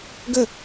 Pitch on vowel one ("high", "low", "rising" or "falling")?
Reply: falling